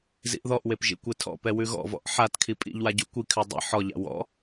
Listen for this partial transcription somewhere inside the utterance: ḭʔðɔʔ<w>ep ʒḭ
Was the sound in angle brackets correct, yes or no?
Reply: yes